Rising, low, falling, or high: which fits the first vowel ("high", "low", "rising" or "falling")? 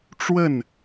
falling